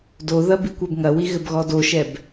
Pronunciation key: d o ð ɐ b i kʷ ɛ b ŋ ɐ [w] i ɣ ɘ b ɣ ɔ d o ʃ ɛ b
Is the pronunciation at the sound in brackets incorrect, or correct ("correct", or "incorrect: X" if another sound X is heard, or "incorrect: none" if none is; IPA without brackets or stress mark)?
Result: correct